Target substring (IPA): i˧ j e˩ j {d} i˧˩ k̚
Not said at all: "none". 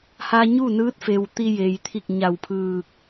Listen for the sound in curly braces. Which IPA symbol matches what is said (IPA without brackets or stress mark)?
t̪ʰ